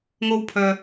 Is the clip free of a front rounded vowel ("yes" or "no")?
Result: no